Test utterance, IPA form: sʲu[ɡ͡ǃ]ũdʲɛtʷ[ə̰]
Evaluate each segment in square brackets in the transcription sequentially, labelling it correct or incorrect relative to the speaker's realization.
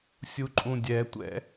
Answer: incorrect: ǃʼ, incorrect: ɛ̰

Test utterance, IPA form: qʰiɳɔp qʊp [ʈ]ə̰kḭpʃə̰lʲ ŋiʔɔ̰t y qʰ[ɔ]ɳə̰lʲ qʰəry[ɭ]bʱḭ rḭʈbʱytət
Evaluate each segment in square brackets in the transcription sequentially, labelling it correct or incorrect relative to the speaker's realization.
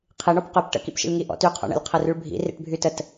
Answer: correct, incorrect: ɔ̰, correct

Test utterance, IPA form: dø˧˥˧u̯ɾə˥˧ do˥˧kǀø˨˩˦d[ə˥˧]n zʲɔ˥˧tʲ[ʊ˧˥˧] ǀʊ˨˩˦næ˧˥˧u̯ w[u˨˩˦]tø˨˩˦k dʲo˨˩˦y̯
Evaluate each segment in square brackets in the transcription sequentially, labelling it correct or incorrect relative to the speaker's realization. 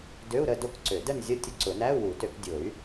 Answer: correct, correct, correct

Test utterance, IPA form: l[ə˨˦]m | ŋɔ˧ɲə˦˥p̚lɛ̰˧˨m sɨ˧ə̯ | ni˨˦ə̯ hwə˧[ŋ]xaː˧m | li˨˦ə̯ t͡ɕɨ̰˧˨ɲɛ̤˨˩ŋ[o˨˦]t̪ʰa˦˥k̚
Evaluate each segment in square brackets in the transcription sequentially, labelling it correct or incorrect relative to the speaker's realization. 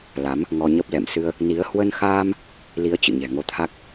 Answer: incorrect: a˨˦, incorrect: n, correct

